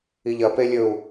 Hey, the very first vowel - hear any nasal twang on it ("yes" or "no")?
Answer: no